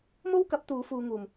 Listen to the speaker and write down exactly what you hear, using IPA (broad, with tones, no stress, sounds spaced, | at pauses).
m o˥ w k ɐ˨˥ p̚ t̪ uː˨˧ f uː˧ ŋ uː˨ m